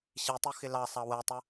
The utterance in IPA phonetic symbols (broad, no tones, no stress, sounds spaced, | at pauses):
ɕ i tˤ u x ɪ l ɑ sˤ ɑ w ɛ tˤ ə